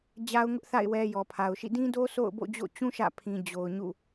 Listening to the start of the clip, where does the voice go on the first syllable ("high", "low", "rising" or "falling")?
high